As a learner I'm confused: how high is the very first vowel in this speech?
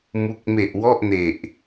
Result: high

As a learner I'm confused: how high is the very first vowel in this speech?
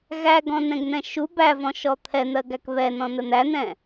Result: low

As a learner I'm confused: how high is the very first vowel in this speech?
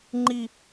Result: high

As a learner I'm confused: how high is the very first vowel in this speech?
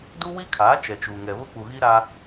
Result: high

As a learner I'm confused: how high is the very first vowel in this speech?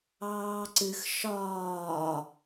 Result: low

